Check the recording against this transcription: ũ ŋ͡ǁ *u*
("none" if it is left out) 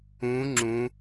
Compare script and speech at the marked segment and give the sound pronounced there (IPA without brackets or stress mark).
ũ